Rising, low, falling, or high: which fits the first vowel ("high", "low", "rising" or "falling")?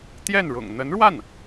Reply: falling